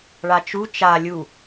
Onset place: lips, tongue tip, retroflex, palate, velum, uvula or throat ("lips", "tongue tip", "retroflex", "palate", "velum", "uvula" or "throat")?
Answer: retroflex